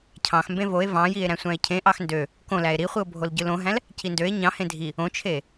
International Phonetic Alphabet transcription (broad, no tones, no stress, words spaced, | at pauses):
cʰɑ̃x mbẽvoe̯ vɑ̃jie̯ ɾæ̃sʷæ̃e̯cʰẽ ʔɑxndø | kõlæe̯ ɾiχʷio̯bʱol ɟɯlõɦæ̃l | cindøe̯ ɲɑ̃hẽ dʱi | õt͡ʃʰe